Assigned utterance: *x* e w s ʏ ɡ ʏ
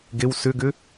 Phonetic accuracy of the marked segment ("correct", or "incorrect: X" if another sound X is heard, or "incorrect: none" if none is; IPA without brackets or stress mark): incorrect: ɡ